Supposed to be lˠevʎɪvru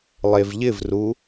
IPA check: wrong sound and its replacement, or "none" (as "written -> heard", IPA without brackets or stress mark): none